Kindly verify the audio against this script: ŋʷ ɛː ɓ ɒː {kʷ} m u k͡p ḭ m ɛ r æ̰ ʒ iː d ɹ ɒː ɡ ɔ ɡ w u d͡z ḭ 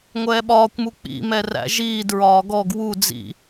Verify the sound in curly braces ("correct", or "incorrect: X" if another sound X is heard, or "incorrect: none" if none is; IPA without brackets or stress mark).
correct